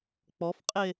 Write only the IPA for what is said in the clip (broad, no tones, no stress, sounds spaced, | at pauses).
k͡p ɔ f qʼ e